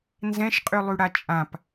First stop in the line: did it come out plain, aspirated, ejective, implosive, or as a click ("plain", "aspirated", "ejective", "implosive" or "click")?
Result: ejective